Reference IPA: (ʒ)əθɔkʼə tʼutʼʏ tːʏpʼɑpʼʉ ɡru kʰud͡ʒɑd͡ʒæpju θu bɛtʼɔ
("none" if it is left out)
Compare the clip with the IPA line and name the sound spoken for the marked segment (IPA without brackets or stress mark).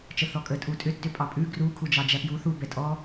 t͡ʃ